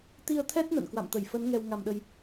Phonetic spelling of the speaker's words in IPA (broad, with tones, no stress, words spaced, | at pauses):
t̪i˧ə̯t̪ʰɛ˦˥t̚ nə̰˧˨n kwa̰˧˨mt̪ə˧˩jfə˨˦n ŋɛ˧w ŋa˧mɗə˧j